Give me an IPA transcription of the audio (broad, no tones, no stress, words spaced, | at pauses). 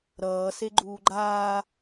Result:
ɾʌːse ɡ͡ǃuːɡ͡ǃaː